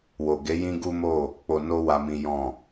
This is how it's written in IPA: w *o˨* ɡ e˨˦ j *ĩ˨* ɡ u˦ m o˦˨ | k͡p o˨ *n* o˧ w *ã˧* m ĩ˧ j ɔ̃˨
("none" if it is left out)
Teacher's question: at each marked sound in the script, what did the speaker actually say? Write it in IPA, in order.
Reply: o˨, ĩ˦, n, a˧

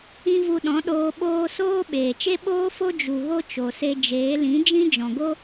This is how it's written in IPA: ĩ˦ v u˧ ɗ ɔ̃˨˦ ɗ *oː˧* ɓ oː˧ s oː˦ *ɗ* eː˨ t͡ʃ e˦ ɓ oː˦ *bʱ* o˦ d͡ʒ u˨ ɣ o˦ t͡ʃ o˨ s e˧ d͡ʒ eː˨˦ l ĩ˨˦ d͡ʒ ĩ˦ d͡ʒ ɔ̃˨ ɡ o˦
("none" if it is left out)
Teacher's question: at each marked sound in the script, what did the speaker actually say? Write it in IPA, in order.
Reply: oː˧, ɓ, f

